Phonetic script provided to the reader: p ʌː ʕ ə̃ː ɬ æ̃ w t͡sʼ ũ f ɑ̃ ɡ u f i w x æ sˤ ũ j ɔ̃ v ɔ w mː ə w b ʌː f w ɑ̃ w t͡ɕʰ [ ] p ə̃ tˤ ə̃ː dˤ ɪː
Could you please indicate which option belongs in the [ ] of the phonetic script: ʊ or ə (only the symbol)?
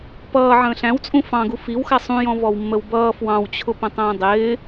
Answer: ʊ